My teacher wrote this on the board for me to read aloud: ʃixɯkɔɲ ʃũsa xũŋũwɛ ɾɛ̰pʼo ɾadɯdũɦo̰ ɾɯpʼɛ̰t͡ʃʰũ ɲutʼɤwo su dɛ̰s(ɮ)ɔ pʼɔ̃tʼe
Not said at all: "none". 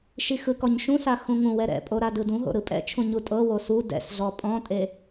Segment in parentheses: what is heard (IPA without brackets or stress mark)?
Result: ɮ